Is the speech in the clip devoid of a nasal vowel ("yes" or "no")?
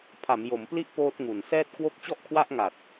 yes